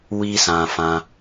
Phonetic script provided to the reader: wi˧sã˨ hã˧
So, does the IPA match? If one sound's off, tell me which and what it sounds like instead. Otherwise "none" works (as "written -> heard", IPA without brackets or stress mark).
h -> f